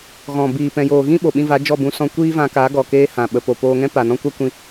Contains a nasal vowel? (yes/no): yes